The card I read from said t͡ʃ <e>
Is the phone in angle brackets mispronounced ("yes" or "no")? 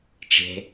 yes